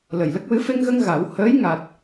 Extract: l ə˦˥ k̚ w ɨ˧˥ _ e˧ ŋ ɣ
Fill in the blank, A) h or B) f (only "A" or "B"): B